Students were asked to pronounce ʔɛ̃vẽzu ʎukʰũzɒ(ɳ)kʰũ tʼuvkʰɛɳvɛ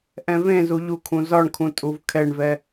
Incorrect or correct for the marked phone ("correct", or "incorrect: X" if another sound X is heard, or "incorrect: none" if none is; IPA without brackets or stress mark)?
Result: correct